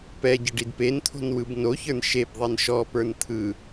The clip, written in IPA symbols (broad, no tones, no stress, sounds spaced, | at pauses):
p ɛ ɟ ə ɖ i d p e n t̪ʰ o̤ n w ɯ b n o ç ə˞ n ʃ e b ðˤ i n ʃ ɔ p ə˞ n t̪ʰ ɯ